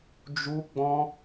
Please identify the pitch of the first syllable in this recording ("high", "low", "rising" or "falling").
high